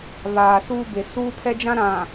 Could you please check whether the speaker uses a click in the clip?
no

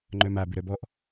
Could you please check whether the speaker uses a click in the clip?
yes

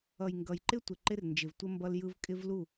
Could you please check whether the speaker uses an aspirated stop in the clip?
no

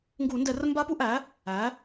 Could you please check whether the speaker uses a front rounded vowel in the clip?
no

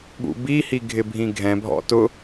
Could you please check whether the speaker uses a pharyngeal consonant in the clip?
no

